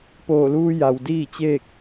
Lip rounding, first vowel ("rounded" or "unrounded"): rounded